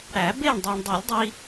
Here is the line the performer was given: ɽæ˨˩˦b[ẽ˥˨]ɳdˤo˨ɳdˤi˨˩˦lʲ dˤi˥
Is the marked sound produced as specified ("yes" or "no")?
no